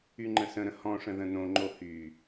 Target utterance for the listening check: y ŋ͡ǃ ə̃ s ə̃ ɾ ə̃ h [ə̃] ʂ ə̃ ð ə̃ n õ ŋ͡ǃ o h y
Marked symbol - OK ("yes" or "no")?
no